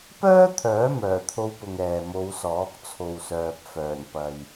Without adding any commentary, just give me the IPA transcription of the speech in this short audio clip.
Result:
p œː˥ t̪ʰ œː˨˥ m œː˨˩ t̪ʰ o˧ w p ʊ˨ ŋ ɛː˨ m o˨˧ w s ɔː˨˥ k̚ t͡sʰ o˨ w s œː˨ p̚ f œː˨˩ n p ɐ˨ j

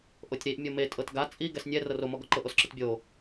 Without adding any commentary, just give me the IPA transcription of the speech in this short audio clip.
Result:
ʔ o tʲ ɾ i ʔ mʲ ɤ m e tʼ ɤ t ɡ a t͡sʼ i ɡ ɛ s nʲ ɛ r ɤ r o m ɔ ɡ ɔ ǃ ɤ ʔ o s ǁ i t bʲ o

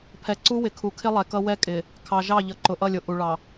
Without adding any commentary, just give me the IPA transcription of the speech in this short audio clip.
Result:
pʰ ɛ˨ ǀ u˦ w ɪ˨ kʰ u˨ kʰ ɪ˦ lˠ ɛ˨ k ʌ˦ w ɛ˦ kʼ ɪ˨ | kʰ ɑ˨ ʒ ɑ˦˨ ʎ ʌ˨ ǃ ʊ˨ ʔ ʌ˦˨ lʲ ʊ˨ ʔ u˨ ɭ ɑ˨

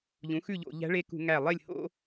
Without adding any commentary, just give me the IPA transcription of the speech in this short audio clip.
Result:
ʎ ũ˩˥ x ʉ˥˨ ʎ o̰˧˩˧ ʎ æ̤˧˥ ɭ e˧˥ k ṳ˧˩˧ ŋ æ˧˩ lˠ e˥˨ lʲ h o̰˥

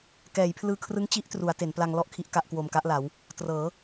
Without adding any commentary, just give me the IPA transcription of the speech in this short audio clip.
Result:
k ɛː˩˦ j pʰ l ɯː˧ kʰ r ɯ˦˥ ŋ t͡ɕ i˦˥ ʔ t r u˩˦ a̯ t e˩˦ n p l a˧ ŋ l ɔ˥˩ ʔ kʰ i˦˥ ʔ k a˦˥ ʔ k w o˧ m k a˦˥ ʔ l a˩˦ w | t r ɤː˩˦

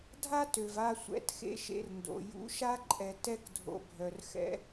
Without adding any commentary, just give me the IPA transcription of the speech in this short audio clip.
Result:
dʱ a˦ t ø˨ v a˧ sʷ ɛ̰˨˦ t x ḛ˧ ʃ ḛ˧ r n d o̰˨ j ṵ˨˦ ʃ a˦ ǃʼ ɛ˨ t ɛ˧ k dʱ o̰˨ bʱ œ˨ r x ɛ̰˧

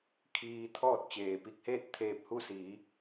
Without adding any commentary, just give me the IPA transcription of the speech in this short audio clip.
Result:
kʰ iː˧ t̪ʰ ɔː˥˨ t̚ t͡ɕ eː˩ p i˧ k̚ h eː˥˨ t̚ t̪ʰ eː˧ p̚ h u˥˨ s i˩˧

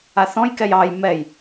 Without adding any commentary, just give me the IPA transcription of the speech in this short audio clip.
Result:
a θ ɔ̃ j k ɛ j ɑ j m ɛ j

